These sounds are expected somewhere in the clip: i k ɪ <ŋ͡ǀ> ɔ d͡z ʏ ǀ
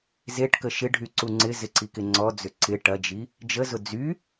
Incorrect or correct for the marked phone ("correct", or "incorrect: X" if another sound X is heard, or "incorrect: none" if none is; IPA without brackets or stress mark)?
correct